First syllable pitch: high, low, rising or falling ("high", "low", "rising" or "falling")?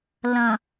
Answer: low